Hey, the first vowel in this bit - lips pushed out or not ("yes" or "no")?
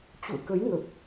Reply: yes